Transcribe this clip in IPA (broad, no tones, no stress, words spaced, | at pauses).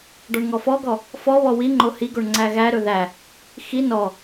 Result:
ɖɔɳŋɔfɔɡɔ | fɔβɔ wiŋ͡ǃo hiɡoɳ ŋ͡ǀæɣæɾɵ ðæ | xi nɔ